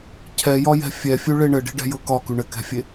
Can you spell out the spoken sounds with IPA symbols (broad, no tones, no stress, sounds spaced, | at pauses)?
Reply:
cʰ ɛ j ɒ j ɛ̤ fʲ ɛ fʲ ʉ ɭ e ɳ ɘ ɖ i̤ ɖ ɛ̤ j ɤ k ɒ k ʉ ɳ ɘ k ɛ̤ fʲ e